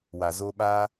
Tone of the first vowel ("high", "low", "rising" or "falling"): low